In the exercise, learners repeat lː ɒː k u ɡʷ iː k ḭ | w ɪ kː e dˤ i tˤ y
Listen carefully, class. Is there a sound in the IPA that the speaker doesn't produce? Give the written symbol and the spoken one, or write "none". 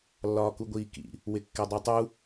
y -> u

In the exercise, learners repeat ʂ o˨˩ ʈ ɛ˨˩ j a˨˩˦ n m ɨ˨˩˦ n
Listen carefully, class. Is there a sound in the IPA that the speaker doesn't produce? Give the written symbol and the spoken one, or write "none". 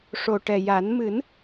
none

